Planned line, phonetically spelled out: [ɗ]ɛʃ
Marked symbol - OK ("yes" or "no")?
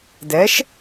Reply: no